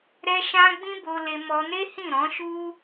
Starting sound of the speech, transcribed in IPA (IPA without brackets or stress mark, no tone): ɾ